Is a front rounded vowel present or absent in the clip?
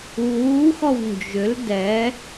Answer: present